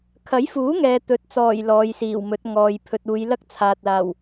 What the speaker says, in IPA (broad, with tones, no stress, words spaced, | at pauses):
kʰɐ˨˥jfuː˨˥ŋɛː˨ t̪ɵ˨t̚t͡sɔː˨˩j lɔː˨˧jsiː˨˩wmɵ˨˥t̚ ŋɔː˨jpʰɵ˧t̚ uː˨˧j lɐ˥k̚t͡sʰaː˨t̚laː˨˩w